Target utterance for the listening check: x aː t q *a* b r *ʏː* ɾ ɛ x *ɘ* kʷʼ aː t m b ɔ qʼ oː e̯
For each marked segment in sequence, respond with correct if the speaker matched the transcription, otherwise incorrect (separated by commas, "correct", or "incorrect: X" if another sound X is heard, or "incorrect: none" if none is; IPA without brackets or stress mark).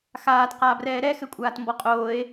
incorrect: aː, incorrect: ɛː, correct